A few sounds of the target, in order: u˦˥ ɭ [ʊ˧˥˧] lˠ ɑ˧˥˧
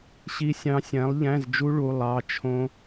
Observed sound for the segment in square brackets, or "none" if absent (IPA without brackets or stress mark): u˧˥˧